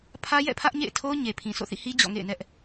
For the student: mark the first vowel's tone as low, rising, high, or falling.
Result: high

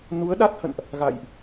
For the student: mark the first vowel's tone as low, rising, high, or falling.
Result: rising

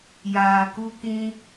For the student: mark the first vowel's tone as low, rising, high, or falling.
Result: low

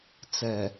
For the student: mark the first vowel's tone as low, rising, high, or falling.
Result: low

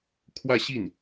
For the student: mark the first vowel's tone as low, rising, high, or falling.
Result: falling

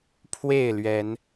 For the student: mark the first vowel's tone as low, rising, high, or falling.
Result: falling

